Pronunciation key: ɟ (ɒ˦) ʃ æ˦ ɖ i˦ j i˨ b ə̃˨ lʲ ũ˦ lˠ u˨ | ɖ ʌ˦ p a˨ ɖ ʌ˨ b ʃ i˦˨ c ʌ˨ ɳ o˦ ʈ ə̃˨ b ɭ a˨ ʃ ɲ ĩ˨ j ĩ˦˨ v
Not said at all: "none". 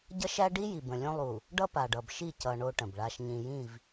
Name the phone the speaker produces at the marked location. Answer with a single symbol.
ʌ˦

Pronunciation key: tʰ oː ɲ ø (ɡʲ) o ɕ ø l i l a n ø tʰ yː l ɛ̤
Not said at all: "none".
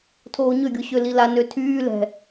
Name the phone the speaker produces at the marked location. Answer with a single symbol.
ɡʲ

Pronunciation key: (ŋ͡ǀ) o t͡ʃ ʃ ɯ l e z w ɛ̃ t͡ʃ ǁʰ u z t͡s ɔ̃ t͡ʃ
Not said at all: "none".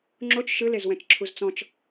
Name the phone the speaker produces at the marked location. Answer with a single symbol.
ŋ͡ǁ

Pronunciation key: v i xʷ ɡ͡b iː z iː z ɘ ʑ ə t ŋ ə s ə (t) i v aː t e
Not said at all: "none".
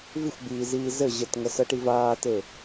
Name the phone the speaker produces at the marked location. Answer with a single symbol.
ʈ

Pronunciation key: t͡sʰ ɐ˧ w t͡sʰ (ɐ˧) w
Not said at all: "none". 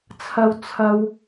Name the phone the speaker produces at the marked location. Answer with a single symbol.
ɐ˧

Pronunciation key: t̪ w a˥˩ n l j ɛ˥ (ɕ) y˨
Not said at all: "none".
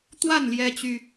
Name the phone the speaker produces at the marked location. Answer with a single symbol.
t͡ɕ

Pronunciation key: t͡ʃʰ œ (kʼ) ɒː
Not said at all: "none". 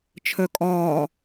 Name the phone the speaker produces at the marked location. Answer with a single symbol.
kʼ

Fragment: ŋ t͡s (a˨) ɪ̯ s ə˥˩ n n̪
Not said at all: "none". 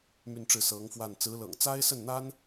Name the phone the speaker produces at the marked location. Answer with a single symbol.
a˥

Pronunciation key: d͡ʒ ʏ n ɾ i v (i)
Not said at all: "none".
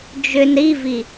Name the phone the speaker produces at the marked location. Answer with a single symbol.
i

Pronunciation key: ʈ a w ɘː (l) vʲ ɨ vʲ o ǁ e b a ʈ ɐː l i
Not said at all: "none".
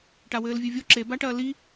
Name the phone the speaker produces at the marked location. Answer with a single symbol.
l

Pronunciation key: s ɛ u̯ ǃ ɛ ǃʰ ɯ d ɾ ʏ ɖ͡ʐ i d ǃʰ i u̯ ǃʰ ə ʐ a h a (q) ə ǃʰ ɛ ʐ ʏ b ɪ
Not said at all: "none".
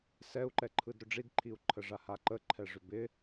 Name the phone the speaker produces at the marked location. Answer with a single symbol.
ǃ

